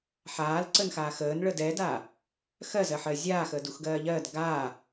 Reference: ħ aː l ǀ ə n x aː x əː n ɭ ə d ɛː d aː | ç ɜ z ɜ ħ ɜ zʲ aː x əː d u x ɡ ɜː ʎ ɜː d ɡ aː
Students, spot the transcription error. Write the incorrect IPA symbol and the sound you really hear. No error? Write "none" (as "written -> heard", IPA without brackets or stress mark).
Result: ç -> x